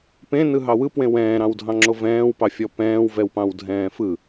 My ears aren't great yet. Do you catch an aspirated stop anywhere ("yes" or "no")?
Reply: no